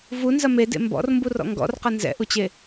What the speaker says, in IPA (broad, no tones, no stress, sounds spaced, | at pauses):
v u n z ɐ m e d ḛ m b ɔ̰ r m b u r ɔ̰ ŋ ɡ ɔ̰ r q ɐ n z ɛ̰ ʔ u t͡ɕ e